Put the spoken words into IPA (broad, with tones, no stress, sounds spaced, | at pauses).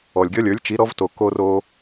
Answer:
ɔ˩ lʲ ɡʲ ɔ˥ lʲ ə˞˩˥ lʲ t͡ʃ i˩˥ ɾ ɔ˩˥ v t o˩ k o˧ r o˧